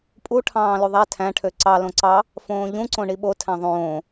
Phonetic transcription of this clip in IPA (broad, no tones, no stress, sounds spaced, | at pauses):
pʼ u ʈʰ ɑ̃ː l y ðˤ æ tʰ æ̃ ʈʰ ø ǀ ɑ l õ ǀ ɑ | f õː ʎ ũ ǀ õ ɳ i ɓ o tʰ æ̃ ðˤ õː